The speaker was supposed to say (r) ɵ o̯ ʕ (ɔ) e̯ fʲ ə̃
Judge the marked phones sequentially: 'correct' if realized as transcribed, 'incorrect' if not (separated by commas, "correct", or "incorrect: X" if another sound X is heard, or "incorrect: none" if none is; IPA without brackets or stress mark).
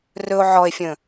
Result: correct, correct